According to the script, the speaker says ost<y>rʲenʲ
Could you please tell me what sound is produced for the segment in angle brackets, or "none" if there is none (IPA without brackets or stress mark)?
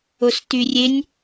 y